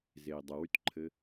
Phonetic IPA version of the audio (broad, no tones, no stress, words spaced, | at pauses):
zei̯dˤɘwytǃʰɘ